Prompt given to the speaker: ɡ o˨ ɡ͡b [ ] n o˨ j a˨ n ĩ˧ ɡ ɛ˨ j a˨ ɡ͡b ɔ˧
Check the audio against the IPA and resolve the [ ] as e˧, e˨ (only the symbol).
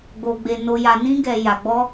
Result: e˨